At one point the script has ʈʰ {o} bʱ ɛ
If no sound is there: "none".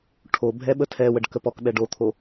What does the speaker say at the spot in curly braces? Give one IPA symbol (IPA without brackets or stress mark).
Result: o